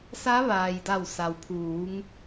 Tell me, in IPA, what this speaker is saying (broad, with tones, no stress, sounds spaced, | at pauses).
s a˧˥ ʋ aː˩ j d a˧˩ w s a˩ w pʰ uː˩˧ ŋ